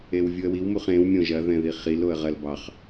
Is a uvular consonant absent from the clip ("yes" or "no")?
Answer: no